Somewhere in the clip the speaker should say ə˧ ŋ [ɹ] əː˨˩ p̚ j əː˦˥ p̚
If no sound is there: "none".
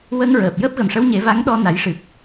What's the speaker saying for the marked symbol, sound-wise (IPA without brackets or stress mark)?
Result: ɹ